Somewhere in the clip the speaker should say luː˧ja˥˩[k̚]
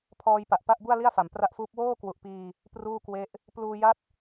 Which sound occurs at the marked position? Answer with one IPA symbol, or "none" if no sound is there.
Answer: t̚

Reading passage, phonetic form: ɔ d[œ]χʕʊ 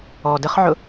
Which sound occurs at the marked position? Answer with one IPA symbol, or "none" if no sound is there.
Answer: ə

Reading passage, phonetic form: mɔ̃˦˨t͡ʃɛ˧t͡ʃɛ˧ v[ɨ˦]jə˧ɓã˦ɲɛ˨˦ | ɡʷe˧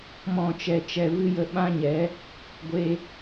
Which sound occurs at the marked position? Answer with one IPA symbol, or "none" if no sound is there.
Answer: ɨ˦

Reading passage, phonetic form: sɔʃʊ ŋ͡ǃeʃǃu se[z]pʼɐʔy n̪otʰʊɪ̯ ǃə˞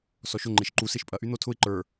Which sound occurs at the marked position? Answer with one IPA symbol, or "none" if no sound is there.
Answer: ʃ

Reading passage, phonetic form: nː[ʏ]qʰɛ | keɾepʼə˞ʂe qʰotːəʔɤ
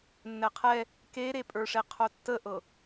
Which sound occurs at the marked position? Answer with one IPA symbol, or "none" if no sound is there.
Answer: ɛ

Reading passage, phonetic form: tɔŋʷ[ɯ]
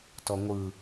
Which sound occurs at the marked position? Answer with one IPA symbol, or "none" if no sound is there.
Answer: ɯ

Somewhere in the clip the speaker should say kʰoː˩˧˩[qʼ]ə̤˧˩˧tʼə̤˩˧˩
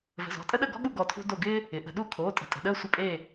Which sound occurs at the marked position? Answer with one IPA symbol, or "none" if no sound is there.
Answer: tʼ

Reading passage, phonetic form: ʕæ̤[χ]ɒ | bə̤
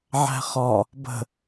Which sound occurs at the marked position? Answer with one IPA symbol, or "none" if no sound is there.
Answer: χ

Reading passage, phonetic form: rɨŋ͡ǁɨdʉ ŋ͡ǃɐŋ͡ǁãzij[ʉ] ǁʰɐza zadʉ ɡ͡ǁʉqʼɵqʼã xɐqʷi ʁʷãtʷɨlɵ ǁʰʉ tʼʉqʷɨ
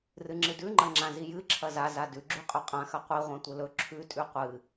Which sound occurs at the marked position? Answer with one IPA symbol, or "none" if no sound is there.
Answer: ɨ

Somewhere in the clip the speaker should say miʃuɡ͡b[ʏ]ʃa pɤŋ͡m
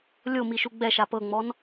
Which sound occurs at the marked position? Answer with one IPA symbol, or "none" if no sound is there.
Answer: ɛ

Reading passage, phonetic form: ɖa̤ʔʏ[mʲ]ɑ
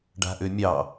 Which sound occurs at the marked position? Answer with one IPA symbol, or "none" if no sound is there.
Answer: mʲ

